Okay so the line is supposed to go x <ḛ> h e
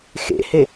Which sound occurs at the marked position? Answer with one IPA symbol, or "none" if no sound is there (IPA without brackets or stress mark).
ḛ